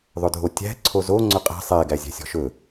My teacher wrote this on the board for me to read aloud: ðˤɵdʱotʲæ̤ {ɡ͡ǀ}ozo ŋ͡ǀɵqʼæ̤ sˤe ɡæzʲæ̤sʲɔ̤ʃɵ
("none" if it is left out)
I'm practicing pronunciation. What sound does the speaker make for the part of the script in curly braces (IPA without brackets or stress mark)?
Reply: ǀʰ